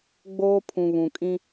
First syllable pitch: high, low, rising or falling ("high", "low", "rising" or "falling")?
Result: high